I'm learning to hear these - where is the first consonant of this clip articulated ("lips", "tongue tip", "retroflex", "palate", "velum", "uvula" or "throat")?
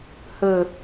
throat